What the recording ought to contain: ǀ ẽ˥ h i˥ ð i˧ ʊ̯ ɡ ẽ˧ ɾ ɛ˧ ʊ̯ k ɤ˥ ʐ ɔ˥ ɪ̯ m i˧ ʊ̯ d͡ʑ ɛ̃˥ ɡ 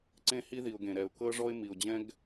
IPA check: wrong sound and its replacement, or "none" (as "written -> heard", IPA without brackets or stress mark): none